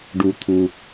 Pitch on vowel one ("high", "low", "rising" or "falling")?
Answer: low